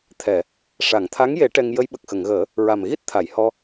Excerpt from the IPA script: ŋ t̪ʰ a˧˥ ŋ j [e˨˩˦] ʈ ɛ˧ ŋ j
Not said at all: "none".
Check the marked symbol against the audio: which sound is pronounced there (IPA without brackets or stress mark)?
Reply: e˨˩˦